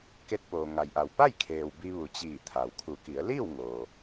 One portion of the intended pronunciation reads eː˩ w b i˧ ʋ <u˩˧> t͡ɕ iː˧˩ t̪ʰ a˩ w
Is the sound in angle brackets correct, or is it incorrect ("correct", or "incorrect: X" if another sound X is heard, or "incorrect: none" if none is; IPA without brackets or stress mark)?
correct